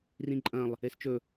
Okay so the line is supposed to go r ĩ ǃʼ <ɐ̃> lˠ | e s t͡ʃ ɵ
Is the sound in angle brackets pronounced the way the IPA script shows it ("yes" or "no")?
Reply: yes